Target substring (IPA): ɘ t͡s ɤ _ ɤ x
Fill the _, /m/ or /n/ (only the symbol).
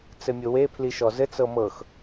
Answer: m